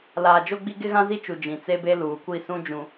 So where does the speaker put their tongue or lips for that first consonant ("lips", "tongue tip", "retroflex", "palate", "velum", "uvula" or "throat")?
tongue tip